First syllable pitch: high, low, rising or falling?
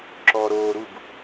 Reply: low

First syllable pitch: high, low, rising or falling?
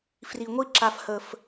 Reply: low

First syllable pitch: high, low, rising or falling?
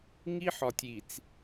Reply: high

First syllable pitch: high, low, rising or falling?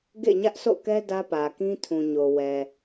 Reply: falling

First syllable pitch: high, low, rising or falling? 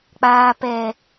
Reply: low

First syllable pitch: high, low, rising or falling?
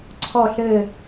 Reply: falling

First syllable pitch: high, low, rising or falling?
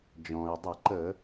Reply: low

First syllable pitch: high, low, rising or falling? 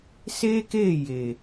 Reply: high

